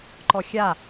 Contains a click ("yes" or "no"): yes